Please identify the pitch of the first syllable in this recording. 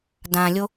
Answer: low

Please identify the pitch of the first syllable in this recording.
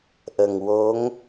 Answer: low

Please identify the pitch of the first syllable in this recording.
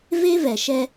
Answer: high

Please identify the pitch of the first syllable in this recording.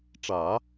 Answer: low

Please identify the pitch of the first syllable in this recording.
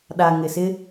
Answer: low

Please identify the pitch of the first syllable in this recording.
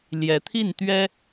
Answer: rising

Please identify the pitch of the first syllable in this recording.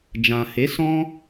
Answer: low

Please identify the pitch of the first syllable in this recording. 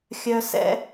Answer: low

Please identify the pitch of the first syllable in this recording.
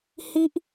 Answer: high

